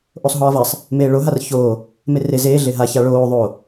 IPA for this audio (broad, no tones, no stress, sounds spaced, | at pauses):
ʔ o sˤ ɦ ɒː v a sˤ | m eː ɭ o ɦ a r ç oː | m e r e z eː ɮ e ɦ a ç a ɭ oː ðˤ o